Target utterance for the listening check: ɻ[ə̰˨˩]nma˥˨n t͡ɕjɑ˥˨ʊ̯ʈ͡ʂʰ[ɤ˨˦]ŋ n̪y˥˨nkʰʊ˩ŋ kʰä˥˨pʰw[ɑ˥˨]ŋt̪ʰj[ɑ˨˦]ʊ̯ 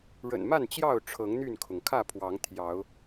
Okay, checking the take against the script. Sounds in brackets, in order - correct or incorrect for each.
correct, correct, incorrect, correct

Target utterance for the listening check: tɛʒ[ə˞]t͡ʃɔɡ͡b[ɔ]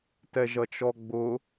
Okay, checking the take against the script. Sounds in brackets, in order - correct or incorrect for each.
incorrect, incorrect

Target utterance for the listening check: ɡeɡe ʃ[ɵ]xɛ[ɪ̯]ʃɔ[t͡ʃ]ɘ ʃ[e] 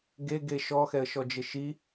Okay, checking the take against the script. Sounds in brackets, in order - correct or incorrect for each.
incorrect, incorrect, incorrect, incorrect

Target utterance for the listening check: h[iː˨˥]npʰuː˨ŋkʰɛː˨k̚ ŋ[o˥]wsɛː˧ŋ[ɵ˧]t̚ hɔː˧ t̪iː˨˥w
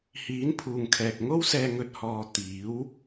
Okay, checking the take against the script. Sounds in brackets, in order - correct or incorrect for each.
correct, correct, correct

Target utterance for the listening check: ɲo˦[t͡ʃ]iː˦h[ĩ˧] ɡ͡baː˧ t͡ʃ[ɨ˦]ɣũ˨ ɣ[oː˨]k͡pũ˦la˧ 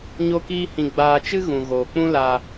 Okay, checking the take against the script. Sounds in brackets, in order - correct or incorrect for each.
incorrect, correct, correct, correct

